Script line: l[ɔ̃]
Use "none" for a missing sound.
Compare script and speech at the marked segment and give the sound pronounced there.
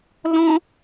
ɔ̃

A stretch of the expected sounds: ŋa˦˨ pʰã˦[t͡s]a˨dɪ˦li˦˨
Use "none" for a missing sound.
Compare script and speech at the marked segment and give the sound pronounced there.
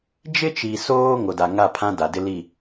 d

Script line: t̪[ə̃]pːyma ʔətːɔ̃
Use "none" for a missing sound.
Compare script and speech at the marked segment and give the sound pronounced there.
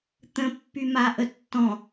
ə̃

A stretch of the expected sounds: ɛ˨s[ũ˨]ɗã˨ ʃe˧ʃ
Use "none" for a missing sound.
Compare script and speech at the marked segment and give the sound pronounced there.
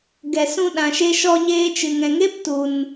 ũ˧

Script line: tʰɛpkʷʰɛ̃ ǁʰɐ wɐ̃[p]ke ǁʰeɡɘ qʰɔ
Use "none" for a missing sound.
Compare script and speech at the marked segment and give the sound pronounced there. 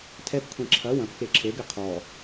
p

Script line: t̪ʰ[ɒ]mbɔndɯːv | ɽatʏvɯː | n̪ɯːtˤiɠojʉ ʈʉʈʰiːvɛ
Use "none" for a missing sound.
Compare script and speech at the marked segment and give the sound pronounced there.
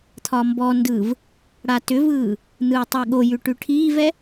ɒ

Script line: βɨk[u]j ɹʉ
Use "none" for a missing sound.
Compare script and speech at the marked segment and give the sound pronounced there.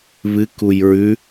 u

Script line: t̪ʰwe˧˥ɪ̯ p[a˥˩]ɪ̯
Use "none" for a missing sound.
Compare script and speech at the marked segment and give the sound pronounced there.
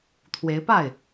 a˥˩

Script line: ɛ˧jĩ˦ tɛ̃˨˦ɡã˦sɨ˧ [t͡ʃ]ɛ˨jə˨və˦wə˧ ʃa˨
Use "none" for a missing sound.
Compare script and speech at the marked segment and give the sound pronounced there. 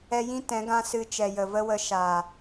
t͡ʃ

